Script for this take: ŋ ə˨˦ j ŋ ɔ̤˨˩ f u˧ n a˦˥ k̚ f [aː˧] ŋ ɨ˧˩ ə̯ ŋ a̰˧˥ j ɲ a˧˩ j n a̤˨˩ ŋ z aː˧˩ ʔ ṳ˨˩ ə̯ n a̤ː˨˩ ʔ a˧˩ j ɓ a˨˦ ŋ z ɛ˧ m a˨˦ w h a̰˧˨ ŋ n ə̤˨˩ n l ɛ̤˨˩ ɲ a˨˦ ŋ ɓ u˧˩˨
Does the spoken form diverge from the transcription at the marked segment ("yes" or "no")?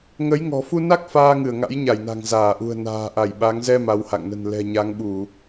no